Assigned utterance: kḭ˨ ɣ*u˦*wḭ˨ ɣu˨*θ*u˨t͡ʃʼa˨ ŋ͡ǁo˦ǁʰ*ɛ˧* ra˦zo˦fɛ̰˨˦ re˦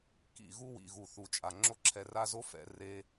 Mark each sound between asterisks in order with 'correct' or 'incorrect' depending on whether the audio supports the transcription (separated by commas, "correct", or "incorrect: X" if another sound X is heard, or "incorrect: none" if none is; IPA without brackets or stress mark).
correct, correct, correct